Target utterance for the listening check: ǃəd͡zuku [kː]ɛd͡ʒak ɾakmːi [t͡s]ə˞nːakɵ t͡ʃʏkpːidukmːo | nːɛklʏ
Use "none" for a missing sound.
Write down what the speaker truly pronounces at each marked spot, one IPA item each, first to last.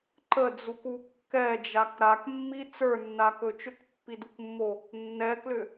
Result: kː, t͡s

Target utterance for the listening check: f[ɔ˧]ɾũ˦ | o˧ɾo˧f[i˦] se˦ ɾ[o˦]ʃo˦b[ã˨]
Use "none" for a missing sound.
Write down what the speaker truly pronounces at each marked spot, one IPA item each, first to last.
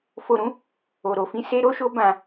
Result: o˧, ĩ˦, o˦, ã˧

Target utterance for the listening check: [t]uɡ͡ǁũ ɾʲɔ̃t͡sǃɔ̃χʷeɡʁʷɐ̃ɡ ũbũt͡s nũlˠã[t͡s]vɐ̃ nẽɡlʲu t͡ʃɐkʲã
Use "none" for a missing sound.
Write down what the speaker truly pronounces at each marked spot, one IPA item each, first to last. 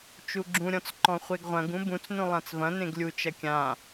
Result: t͡ʃ, t͡s

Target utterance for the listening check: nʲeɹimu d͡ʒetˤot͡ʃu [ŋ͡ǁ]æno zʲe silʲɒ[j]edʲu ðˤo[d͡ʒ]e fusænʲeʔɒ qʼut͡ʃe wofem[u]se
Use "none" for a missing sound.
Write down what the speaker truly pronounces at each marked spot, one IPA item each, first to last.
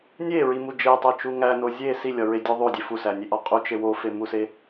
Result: ŋ, ɹ, dʲ, u

